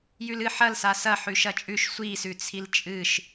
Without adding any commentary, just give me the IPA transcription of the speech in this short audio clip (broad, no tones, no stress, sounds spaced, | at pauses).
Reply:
j ʉ l ɨ ħ ɐ l s a s ɐ ħ ʉ ʃ ɐ t͡ʃʼ ʉ ʃ sʷ i s ʉ t͡sʰ i l t͡ʃʼ ɨ ʃ